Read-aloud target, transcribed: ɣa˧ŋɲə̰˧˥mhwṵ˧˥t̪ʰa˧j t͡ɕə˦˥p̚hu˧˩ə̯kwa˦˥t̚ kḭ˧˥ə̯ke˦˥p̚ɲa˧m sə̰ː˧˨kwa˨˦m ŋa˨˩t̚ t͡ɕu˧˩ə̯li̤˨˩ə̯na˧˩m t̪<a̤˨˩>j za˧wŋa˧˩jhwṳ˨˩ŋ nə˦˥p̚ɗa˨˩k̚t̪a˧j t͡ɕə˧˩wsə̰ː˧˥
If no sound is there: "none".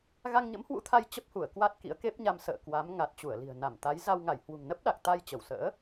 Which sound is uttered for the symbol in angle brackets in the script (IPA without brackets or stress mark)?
a˨˦